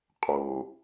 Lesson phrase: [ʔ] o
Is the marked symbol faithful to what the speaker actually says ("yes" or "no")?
no